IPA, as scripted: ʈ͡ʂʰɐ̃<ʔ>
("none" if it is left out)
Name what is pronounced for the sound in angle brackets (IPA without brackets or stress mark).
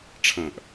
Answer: ʔ